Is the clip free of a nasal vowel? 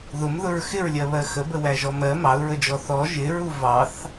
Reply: yes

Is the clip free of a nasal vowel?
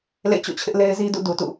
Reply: yes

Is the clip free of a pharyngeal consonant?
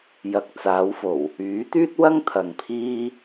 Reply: yes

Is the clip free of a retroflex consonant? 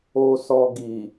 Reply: yes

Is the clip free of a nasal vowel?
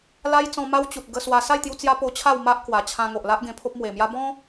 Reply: no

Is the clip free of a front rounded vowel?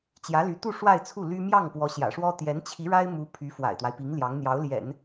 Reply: no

